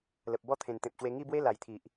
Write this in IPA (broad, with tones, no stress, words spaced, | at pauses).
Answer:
lə˨p̚bɔ˥˧ t̪ʰẽ˨˩nt̪ẽ˨p̚ɕwe˧ ŋi˥˧bwe˦ la˨˩jt̪ʰi˨ʔ